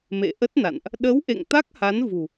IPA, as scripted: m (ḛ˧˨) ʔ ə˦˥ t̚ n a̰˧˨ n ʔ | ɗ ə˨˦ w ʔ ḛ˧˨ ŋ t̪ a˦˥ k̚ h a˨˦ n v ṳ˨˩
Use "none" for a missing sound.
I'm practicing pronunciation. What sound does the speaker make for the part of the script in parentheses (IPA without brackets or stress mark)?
ḛ˧˨